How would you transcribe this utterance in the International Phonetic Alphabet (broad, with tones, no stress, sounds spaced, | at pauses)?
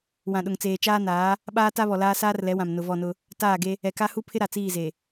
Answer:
w ã˨ ɗ ʊ˨ ŋ t͡s eː˨ t͡ʃ aː˦ n aː˨˦ | ɓ aː˦ t a˦ β ɔ˨ l aː˦ s aː˦ r l ɛ˨˦ w ã˨ m n ʊ˨ v ɔ˦˨ n ʊ˦ | t aː˦˨ ɡ e˦ | ɛ˨ k a˦ h u˦ pʰ ɪ˦ ɾ a˨ t͡s iː˦˨ z e˨